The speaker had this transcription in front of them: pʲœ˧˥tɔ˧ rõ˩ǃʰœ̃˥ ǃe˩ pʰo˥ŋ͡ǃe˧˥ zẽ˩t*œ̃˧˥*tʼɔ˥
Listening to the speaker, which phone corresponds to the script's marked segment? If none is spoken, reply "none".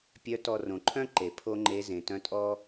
œ̃˧˥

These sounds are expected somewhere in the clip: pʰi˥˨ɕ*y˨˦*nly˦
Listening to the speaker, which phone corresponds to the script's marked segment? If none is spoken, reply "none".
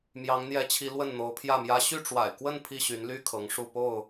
y˨˦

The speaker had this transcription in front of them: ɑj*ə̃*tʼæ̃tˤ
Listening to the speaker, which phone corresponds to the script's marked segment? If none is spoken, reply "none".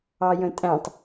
ə̃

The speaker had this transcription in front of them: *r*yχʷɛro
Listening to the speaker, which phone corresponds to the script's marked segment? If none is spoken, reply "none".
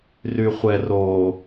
r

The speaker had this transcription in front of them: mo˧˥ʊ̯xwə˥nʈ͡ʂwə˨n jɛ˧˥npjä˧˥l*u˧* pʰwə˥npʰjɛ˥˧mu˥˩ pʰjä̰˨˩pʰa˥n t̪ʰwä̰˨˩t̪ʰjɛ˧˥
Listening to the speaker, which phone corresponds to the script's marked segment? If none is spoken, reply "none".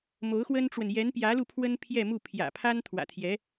u˧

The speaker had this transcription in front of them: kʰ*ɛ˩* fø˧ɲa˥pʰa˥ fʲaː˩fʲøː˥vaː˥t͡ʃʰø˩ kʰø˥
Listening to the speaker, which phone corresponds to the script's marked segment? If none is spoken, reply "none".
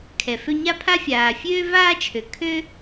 ɛ˩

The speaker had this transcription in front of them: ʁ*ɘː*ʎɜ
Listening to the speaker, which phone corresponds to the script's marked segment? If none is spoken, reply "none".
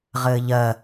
ɘː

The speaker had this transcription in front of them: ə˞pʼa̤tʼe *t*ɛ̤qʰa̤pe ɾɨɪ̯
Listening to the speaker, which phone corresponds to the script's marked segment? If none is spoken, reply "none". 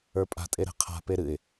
ɾ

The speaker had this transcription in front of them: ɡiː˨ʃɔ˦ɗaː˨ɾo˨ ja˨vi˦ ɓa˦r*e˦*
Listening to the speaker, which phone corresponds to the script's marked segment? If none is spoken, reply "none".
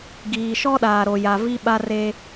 e˦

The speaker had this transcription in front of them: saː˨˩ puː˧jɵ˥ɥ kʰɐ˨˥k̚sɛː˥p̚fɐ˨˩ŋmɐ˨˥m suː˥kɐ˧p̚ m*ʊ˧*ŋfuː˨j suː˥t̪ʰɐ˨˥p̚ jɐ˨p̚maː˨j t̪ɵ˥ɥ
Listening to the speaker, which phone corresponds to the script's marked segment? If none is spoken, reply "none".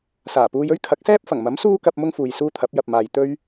ʊ˥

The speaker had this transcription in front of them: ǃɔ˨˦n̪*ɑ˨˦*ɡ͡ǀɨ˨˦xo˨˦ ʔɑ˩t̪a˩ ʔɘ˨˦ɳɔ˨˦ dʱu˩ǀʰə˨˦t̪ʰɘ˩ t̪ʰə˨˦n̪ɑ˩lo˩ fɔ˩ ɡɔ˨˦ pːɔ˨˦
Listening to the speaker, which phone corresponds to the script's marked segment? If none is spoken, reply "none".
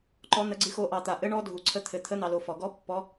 ə˨˦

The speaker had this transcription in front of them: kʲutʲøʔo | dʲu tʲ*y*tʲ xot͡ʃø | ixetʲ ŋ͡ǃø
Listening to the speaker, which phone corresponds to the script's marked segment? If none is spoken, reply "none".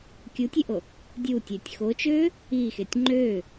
ø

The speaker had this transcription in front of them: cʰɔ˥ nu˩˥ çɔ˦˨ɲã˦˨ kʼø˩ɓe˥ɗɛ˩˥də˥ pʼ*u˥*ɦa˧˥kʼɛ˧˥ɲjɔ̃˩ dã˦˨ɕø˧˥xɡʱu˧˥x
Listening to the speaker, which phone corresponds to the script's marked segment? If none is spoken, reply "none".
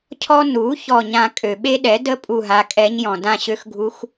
u˦˨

